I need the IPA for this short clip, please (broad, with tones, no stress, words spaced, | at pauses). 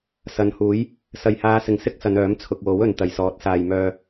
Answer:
sɐ˨nhuː˨˥j | sɐ˨˩jhaː˨˧sɪ˨˩ŋ sɪ˥k̚sɐ˨˧nœː˨˥m t͡sʰʊ˨k̚wo˨˥wɵ˨n t̪ɐ˨˩jsɔː˨˥t̚saː˨jmœː˧